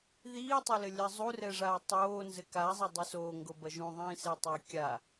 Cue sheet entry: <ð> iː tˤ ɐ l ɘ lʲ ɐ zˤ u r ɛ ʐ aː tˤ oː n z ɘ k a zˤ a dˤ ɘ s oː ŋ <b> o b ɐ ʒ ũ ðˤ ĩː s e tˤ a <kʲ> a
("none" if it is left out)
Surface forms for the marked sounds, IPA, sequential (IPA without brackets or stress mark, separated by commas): ð, ɡ, kʲ